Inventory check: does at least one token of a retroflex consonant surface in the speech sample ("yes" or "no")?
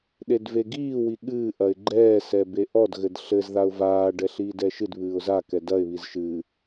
yes